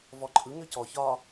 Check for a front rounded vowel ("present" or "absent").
present